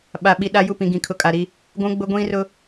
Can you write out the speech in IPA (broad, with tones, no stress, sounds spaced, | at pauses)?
ɓ a˨ ɓ i˨ ɗ a˦ j u˦˨ p ĩ˨ ɡ ĩ˨ kʰ ʊ˨ kʼ a˨ ɾ i˦ | ɡʷ ũ˦ ɡ͡b ʊ˦ ɡʷ ĩ˦ r ʊ˦